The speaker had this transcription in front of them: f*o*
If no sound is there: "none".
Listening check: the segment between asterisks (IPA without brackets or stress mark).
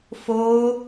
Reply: o